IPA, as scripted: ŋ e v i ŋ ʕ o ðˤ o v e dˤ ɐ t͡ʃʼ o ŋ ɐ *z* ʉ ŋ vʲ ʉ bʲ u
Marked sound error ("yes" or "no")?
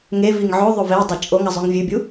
yes